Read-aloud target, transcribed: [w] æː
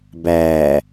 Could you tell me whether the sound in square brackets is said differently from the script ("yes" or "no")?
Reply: yes